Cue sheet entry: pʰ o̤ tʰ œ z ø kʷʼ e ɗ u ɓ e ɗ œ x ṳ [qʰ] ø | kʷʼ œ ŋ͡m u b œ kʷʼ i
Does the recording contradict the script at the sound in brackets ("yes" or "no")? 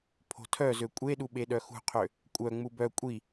no